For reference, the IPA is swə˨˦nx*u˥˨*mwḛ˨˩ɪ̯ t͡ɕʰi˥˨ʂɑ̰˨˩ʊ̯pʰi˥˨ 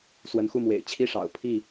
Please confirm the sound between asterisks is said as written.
yes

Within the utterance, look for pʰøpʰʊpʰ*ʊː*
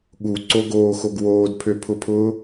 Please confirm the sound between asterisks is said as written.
yes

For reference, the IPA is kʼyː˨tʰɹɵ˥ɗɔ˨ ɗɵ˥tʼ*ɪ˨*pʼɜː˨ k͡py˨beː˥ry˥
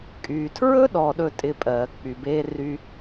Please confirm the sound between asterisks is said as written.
no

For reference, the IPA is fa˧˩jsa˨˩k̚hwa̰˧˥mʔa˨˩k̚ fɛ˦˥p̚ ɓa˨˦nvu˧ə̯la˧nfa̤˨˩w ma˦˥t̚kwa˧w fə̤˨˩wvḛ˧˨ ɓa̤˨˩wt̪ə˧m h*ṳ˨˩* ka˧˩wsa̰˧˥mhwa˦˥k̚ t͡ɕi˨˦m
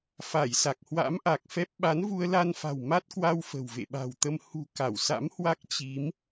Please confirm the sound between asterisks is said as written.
yes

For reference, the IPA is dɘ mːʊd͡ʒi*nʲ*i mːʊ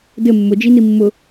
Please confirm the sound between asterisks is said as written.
no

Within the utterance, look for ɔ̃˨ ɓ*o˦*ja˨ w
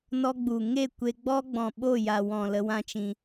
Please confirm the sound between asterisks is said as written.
no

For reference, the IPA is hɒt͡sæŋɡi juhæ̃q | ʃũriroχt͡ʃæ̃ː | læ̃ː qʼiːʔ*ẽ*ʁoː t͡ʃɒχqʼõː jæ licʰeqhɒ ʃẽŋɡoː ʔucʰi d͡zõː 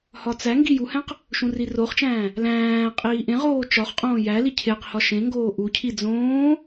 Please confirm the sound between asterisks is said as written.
yes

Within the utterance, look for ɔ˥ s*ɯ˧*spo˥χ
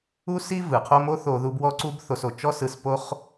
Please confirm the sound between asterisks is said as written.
yes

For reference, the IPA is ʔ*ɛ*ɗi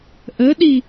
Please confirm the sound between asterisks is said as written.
no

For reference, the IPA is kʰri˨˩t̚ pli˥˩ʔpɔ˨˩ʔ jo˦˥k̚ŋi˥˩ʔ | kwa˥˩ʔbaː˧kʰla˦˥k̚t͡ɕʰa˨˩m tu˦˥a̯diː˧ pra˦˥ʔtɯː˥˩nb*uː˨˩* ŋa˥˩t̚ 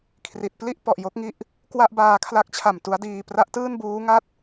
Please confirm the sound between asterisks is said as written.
no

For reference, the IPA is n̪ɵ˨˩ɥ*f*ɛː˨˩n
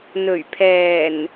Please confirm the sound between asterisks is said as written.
no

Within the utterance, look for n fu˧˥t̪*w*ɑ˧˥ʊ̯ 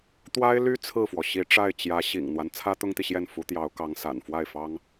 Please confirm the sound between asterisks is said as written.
no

